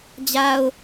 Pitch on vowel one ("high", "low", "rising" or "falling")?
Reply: high